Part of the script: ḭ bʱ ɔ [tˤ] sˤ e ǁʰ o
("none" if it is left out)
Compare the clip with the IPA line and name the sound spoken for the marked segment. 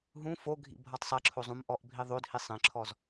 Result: tˤ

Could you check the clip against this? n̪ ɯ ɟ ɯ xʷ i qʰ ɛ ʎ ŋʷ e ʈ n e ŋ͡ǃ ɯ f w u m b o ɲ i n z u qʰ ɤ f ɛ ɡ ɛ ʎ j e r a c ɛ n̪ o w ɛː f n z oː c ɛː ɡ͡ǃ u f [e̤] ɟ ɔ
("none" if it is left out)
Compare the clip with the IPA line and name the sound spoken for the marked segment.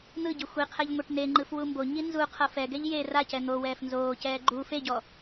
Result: e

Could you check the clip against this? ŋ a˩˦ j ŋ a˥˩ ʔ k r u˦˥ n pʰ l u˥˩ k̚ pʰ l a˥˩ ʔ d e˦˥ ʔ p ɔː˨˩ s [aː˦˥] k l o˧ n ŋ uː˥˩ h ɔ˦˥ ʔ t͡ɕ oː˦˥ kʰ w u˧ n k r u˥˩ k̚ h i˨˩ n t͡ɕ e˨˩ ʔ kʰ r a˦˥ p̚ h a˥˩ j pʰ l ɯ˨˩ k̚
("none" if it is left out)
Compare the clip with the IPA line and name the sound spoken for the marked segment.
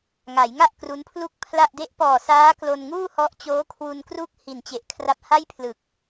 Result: aː˦˥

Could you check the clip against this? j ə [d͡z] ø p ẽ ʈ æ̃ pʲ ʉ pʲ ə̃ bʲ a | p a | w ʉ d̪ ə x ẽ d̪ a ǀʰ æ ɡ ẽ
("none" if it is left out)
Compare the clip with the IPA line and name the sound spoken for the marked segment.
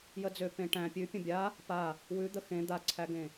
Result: d͡z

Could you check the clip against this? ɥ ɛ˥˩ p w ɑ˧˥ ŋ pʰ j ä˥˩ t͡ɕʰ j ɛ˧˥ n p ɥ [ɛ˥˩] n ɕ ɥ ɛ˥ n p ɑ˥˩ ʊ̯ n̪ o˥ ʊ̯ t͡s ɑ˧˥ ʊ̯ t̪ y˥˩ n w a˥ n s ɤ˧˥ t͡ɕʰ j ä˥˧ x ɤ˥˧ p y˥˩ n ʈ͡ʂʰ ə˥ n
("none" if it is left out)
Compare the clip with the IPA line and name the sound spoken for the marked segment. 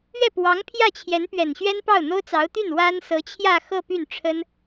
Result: ɛ˨˩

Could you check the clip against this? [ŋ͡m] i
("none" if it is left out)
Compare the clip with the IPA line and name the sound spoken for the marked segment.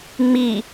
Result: ŋ͡m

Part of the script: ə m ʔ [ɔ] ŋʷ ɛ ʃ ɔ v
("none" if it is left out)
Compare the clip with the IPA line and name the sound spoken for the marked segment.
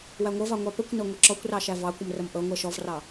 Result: ɤ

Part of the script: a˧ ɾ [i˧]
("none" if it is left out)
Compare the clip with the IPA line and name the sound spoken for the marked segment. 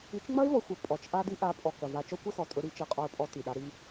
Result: i˧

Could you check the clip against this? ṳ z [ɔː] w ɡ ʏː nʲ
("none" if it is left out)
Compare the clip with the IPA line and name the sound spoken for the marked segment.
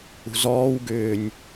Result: ɔː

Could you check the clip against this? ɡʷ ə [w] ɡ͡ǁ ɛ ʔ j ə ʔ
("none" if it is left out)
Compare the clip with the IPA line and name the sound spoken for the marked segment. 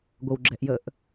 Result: w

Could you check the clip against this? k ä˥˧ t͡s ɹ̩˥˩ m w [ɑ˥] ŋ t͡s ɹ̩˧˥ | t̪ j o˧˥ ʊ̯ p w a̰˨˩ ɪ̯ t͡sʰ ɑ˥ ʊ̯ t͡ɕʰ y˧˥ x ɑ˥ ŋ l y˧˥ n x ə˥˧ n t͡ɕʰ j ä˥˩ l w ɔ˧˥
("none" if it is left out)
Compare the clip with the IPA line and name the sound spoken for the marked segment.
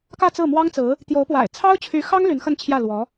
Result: ɑ˥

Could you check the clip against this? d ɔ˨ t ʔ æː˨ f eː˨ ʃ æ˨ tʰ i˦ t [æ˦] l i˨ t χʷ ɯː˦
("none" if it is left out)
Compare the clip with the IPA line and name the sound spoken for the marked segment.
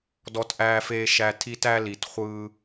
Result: æ˦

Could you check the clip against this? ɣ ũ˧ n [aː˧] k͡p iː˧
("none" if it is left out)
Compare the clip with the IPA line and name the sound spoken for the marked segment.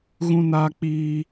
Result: aː˧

